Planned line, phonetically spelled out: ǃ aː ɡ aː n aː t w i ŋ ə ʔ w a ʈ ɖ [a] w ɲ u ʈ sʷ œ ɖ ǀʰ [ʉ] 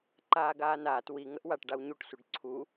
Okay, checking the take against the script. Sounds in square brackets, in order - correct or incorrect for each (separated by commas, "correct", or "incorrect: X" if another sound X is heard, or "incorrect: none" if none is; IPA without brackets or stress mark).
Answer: correct, incorrect: u